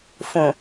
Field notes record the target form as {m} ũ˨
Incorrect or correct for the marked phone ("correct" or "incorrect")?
incorrect